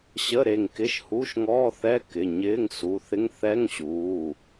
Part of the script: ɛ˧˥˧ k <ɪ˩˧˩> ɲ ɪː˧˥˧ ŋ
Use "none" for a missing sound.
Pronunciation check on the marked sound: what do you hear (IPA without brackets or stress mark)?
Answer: ɪ˩˧˩